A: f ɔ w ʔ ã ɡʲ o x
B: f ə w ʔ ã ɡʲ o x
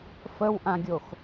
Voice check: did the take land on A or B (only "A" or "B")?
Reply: B